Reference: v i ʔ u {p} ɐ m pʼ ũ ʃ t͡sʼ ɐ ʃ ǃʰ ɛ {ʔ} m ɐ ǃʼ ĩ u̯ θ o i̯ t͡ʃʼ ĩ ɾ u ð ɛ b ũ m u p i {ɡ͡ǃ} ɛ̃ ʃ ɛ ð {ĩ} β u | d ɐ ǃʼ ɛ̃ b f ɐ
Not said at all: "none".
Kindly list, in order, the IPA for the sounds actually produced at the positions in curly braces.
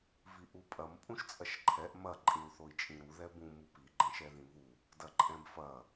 pʼ, ʔ, ɡ͡ǃ, ĩ

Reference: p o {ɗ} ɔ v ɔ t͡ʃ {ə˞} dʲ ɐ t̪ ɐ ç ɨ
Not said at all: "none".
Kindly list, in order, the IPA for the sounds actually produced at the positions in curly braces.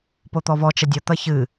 t̪, ɐ

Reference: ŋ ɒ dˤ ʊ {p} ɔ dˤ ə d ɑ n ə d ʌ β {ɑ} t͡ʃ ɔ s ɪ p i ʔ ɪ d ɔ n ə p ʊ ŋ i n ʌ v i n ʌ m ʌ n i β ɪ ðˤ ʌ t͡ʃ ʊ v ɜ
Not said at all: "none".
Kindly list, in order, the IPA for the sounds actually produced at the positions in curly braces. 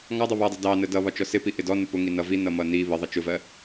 β, ɒ

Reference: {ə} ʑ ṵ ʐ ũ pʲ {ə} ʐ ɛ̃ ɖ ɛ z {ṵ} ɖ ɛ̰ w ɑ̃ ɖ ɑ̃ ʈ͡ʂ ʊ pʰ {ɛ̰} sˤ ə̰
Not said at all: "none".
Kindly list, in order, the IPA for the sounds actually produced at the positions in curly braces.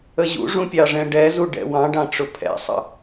ə, ɑ, u, ɛ̰

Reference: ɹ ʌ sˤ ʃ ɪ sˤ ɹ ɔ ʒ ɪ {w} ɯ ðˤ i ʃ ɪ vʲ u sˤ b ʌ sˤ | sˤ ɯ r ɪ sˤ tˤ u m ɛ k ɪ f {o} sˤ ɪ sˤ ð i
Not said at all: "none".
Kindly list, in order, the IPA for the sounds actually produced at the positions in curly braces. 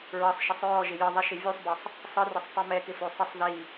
j, o

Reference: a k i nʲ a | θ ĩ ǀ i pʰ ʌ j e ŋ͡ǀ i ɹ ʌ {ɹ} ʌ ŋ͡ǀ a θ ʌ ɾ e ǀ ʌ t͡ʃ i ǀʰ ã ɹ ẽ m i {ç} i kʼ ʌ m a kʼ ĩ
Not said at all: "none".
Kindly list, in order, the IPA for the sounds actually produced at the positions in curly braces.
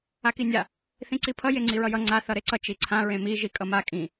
j, ʒ

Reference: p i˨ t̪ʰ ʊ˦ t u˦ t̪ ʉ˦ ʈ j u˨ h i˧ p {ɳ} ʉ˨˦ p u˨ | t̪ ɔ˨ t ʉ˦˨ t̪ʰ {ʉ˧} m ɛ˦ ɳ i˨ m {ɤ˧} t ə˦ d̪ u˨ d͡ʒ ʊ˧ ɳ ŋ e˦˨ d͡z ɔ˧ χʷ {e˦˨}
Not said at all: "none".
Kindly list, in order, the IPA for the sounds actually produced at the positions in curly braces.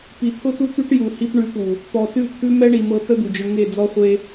ɳ, ʉ˦, ɤ˧, e˧

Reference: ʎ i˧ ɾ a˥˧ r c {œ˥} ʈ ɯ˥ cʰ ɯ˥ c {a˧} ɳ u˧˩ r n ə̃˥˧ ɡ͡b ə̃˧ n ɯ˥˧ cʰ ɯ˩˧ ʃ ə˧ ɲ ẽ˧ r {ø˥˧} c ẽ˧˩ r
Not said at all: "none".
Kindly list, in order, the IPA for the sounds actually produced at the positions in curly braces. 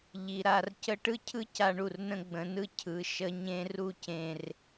ə˥, a˧, u˥˧

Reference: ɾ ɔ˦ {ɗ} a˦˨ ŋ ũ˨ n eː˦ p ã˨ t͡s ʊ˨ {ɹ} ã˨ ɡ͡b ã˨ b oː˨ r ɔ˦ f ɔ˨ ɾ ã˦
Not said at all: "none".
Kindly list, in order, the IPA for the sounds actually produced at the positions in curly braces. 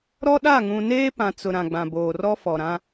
ɗ, ɾ

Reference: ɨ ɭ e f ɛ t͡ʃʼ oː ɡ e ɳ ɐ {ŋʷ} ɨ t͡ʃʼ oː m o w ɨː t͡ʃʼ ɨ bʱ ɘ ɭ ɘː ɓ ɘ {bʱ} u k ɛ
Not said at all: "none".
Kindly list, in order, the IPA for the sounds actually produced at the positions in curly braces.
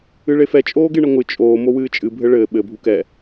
ŋʷ, bʱ

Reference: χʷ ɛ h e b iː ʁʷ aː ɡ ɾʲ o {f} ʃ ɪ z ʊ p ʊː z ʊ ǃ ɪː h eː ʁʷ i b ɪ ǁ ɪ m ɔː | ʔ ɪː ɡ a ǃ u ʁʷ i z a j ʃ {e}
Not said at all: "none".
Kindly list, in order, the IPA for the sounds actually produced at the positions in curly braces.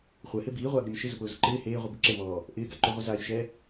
m, ɛ

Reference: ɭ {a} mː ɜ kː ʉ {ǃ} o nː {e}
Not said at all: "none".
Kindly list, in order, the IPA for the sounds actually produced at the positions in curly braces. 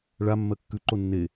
a, ǃ, e

